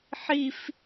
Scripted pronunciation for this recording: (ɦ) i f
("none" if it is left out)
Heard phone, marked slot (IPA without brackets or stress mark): ħ